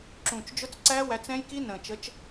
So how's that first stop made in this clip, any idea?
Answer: click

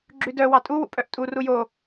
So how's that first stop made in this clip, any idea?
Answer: click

